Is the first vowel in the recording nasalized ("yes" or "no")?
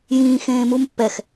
yes